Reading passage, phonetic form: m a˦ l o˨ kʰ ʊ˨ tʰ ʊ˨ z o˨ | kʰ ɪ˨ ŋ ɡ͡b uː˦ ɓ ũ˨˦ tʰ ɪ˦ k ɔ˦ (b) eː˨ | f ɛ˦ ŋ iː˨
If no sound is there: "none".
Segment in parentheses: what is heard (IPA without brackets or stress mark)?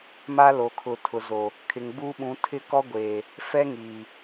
ɡʷ